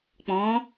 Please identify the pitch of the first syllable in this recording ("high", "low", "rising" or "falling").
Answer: rising